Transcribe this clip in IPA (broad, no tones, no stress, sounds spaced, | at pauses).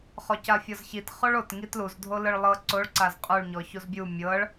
χ ɔ c a fʲ ɔ z ç i t χ o ɭ o t ŋ i t l u z dʱ o l ɯ ɭ lˠ ɤ ǀ o ɭ ǀ a z qʼ u ɭ ɲ ɔ ç u z bʲ u mʲ ɤ ɭ